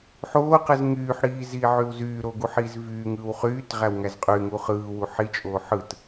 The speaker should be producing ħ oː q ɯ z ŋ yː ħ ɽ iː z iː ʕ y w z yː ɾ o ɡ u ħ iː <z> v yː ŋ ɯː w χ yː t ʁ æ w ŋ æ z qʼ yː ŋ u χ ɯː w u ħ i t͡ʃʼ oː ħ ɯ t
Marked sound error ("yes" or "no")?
no